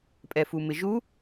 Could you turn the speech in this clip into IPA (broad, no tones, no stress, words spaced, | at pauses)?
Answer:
pʼɛfumɪʒu